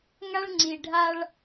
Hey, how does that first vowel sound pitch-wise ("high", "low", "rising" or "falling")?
high